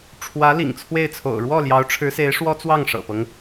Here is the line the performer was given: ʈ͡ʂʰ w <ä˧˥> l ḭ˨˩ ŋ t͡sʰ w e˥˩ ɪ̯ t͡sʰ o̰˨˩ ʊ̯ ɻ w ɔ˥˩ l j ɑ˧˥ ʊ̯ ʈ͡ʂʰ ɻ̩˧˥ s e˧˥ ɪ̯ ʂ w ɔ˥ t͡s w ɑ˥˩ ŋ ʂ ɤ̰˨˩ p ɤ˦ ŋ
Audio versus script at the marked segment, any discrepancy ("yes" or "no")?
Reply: no